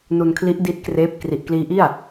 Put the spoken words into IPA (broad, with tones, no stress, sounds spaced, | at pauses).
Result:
n u˧ n kʰ l i˦˥ ʔ d i˦˥ t̚ k r eː˦˥ p̚ k r i˨˩ ʔ k l iː˦˥ ʔ i˥˩ a̯